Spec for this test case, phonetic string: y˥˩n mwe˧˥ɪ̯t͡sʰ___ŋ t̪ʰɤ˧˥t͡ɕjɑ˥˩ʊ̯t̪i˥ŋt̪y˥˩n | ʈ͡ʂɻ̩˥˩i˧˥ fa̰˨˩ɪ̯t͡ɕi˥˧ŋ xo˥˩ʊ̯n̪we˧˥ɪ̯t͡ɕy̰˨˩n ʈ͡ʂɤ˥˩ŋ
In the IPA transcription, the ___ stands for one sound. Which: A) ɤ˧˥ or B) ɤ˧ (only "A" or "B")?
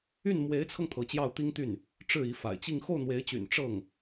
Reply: B